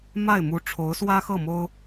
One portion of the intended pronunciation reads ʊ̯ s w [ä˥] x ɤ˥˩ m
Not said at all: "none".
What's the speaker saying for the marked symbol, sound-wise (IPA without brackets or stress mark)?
ä˥